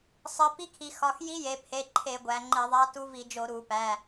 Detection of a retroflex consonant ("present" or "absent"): absent